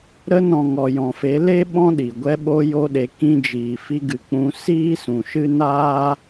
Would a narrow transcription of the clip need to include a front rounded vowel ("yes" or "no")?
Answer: no